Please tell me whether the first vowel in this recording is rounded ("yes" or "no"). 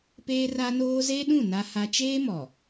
no